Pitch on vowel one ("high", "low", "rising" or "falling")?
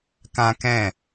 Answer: high